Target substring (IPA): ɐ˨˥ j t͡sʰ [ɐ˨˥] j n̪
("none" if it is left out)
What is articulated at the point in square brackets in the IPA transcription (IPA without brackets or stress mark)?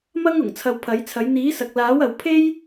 ɐ˨˥